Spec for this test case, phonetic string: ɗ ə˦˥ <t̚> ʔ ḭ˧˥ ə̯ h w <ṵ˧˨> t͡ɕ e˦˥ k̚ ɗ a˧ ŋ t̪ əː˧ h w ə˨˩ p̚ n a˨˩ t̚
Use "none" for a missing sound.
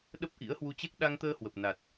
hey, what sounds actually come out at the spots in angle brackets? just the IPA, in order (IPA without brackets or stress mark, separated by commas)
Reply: p̚, u˧